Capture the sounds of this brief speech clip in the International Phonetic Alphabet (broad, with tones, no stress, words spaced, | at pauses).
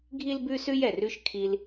ɡʱi˥lbʉ˥sʉ˥j ɛ˩rʉ˥ʃ kʰi˧l